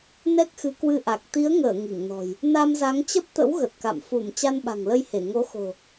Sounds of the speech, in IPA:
nɛ˦˥k̚xɨ˨˦kwɨ˧ʔa˨˩k̚ t̪i˨˦ə̯ŋəː˧˩ ŋi˧˩ŋnɔ̤˨˩j | na˧mza˨˦ŋt͡ɕə˦˥p̚t̪ə̰˧˥w ɣə˨˩t̚ka̰˧˨m fu˧˩m t͡ɕa˧nɓa̤˨˩ŋlə˧jhe˧˩ ŋo˨˦xo̤˨˩

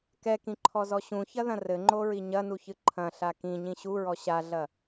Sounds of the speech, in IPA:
kɛkĩǃʰɔzɔ ɕũçɐðɐ̃ rɘŋ͡ǃoɹi ɲɐnuçɨ ǃʰɐ̃ɬa kĩɲĩ ɕuɹɔ ɕaɮɐ

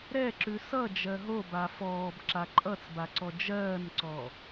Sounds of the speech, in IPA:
ɾɛǁʉ sʌ d͡ʒɜɦo bafɔːb ǁaǃʼʌt͡sbaǀɔ d͡ʒɜːnǀɔ

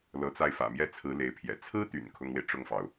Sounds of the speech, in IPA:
lɤ˧˥t͡sa˥˩ɪ̯fä̰˨˩mjɛ˥˩ t͡sʰɹ̩˧˥ le˧˥ɪ̯pʰjɛ̰˨˩ t͡sʰɹ̩˥t̪y̰˨˩n kʰʊ˥ŋwe˨ɪ̯ ʈ͡ʂʊ˥˩ŋfɑ˩ʊ̯

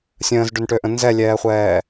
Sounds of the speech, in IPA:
sʲə̃ːzɖʏnʈøʔə̃ nzɛlʲɛːχʷɛː

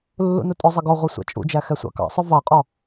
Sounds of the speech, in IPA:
lːṵnʊtʼʊzˤɪ ɡɔʁʷɛ sʷæ̰t͡ʃʼṵd͡ʒæ xɛsʷɑ̰kɑ̰sˤʊ vɑqʼɔ

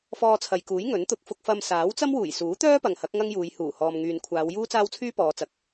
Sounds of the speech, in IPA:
fɔː˧t͡sʰɐ˨jkuː˨˥j ŋɵ˨˥nt̪ʊ˧k̚ fʊ˧k̚fɐ˧m saː˨˥wt͡sɐ˥mwuː˨˩j suː˨˥t̪œː˥pɐ˨ŋ hɐ˨˥k̚ ŋɐ˥ŋjuː˨˧j huː˨˩hɔː˨mŋyː˨nkʷʰaː˨˧w juː˥t͡saː˥wt͡sʰyː˥ pɔː˨˧t͡sɐ˨˥k̚

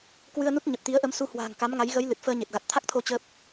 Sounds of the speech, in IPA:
kwɨ˧ə̯nu˦˥t̚ɲə˨˩p̚ t̪i˨˦ə̯ʔə˨˦msu˧ hwa̤ː˨˩ŋka˨˦mŋa˨˦j ɣə˨˦j lɨ˨˩t̚fəː˧ɲe˨˩t̚ ɣa˨˩t̚t̪ʰa˦˥k̚t̪ʰo˧ t͡ɕəː˦˥p̚

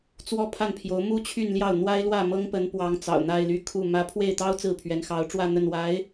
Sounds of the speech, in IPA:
t͡swɔ˥˧pʰa˥˩npʰjo˧˥ʊ̯ mu˥t͡ɕʰy˥˧nljɑ˥˩ʊ̯ n̪wa˥ɪ̯lwä˥˩ mɤ˥ŋpə˧˥n pwɑ˧˥ŋ t͡sɑ̰˨˩ʊ̯n̪a˥˧ɪ̯ly˥˧kʰu˥˩ mä˧˥pʰwe˥˩ɪ̯t̪ɑ˥ʊ̯ t͡sɹ̩˥˩pʰɥɛ˧˥nxɑ˧˥ʊ̯ʈ͡ʂwä˥˧ n̪ə˥˩nwa˧˥ɪ̯

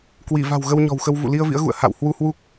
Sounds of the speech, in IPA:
kwi˧˩ va̤˨˩w ɣə˧wɲɔ̤˨˩wxə˧w vṵ˧˨li˧ə̯vḭ˧˥ə̯ɣṵ˧˨ə̯ ha̰˧˨whwu˧hwu˦˥k̚

